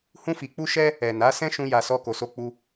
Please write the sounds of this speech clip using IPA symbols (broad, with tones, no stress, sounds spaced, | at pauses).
h ũ˧ f i˨ k͡p u˧ ʃ ɛ˧ | ɛ˨ n a˨˦ s ɛ̃˦ ʃ ũ˦ j a˧ s ɔ˦ k o˧ s o˦ k͡p u˦